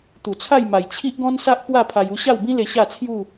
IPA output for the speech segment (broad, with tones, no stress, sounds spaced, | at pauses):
t̪ u˨˩ t͡sʰ a˥˧ j m a˨˩ j t͡ɕʰ i˦ ʔ ɡ ɔ̃˦ n s a˦ ʔ p w a˥˧ pʰ a˧ j u˥˧ ɕ a˥˧ w b ĩ˦ l e˧ ɕ a˥˧ t͡sʰ j u˥˧